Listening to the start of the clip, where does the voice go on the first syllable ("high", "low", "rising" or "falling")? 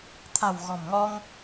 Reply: low